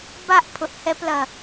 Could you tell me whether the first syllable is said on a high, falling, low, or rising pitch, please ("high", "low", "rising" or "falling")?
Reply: falling